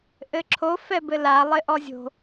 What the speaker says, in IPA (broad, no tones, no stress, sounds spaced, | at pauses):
ʔ ɘ ǁʰ o f ɛ b ɘ l a lˠ ɪ ʔ ɔ zʲ o̤